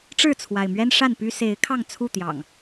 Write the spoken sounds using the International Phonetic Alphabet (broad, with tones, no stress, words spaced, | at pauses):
ʈ͡ʂɻ̩˥˨t͡sʰwa˩ɪ̯mɥɛ˦n ʂa˥˨npy˦ se˨˦ɪ̯kʰɑ˥˨ŋt͡sʰu˥˨ t̪jɑ̰˨˩ŋ